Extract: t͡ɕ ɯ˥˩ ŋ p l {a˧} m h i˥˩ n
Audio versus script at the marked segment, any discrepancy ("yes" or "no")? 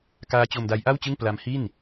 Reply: yes